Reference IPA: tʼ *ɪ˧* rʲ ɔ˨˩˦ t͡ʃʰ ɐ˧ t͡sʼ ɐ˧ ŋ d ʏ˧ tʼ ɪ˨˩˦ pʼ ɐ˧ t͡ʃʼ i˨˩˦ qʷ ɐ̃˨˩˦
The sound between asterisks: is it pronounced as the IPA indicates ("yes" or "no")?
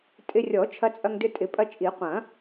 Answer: yes